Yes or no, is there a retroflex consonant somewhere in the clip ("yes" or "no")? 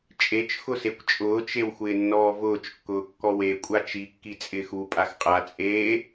no